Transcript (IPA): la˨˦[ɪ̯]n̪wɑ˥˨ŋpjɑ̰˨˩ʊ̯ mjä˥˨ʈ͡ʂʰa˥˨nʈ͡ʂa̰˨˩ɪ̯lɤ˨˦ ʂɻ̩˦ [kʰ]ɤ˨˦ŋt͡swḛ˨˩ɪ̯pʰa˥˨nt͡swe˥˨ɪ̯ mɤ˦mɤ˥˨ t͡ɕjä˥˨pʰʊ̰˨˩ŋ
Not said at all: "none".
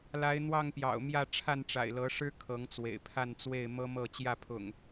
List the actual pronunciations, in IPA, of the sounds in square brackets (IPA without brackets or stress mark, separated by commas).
ɪ̯, kʰ